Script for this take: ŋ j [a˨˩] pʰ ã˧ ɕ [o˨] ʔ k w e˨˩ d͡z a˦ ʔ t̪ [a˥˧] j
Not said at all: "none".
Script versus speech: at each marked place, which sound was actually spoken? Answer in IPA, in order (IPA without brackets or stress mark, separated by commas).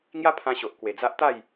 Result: a˦, o˨, a˥˧